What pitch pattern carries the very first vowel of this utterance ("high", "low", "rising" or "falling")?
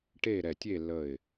falling